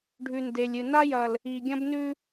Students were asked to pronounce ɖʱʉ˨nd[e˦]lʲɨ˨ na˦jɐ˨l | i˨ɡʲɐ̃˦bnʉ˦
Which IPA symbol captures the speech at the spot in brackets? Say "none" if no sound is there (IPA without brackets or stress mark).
e˨